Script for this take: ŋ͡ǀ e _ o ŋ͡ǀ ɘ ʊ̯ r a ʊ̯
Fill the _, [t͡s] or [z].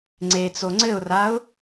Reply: t͡s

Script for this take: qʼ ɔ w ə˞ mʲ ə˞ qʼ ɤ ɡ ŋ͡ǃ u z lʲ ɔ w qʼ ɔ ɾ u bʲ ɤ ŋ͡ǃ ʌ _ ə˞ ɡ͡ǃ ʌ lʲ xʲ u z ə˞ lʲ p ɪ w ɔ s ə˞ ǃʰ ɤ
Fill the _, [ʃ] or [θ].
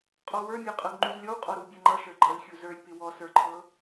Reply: ʃ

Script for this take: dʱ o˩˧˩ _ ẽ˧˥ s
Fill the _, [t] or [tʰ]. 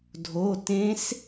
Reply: t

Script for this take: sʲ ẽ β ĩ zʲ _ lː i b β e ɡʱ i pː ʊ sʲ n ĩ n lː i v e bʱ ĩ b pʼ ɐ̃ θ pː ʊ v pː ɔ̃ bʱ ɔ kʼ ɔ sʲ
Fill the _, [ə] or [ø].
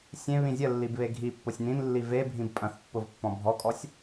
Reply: ə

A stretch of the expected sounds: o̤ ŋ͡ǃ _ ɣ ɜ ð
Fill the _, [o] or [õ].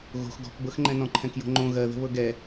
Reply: õ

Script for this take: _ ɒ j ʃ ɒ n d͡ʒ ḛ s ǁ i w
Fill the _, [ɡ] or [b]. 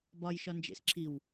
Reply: b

